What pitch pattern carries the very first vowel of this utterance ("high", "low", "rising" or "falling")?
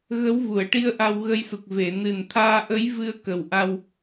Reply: rising